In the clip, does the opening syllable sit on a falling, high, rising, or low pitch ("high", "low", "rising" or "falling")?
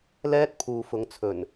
high